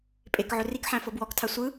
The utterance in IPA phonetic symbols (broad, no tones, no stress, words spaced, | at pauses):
pʼek ʕɵrikħæ̃ fɤbwɔktʰa sʷɯ